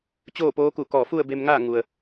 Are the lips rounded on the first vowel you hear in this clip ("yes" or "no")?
yes